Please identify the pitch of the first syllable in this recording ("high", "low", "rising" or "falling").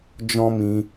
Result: high